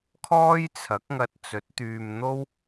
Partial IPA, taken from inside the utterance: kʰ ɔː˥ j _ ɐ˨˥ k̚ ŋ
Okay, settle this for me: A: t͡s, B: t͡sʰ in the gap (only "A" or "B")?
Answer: B